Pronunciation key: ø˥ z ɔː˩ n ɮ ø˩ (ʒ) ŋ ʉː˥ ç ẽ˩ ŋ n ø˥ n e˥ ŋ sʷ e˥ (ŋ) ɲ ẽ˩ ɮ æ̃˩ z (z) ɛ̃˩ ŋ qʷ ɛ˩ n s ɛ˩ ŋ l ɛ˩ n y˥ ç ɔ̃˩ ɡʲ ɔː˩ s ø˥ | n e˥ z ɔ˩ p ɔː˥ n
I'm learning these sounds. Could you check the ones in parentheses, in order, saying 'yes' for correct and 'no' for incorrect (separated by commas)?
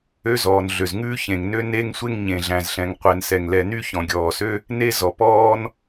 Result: no, yes, no